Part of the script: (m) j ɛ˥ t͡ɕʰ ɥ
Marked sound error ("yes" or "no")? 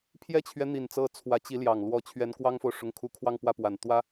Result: yes